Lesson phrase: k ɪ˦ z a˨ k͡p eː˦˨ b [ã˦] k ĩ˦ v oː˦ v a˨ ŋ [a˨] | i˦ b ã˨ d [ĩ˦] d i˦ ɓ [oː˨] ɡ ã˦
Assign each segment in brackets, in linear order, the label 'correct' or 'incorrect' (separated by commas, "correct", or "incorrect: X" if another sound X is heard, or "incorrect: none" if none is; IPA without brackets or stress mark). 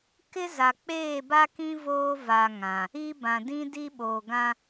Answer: incorrect: a˦, incorrect: ã˨, correct, correct